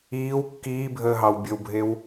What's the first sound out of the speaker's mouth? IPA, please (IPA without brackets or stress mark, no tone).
iː